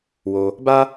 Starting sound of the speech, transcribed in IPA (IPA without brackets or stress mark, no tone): w